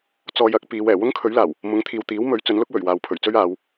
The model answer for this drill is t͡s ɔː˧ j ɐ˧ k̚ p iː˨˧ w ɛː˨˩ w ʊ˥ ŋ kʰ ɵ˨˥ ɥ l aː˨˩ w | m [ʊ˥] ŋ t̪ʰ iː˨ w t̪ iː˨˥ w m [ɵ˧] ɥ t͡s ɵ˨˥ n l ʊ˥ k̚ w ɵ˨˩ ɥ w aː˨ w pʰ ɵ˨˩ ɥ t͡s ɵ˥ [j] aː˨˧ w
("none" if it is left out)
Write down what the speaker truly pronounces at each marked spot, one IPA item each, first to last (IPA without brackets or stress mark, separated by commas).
ʊ˨˥, ɵ˨˥, ɥ